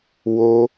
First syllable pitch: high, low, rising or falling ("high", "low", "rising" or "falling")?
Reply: high